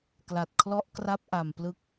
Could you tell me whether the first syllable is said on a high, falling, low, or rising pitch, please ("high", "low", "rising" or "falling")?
low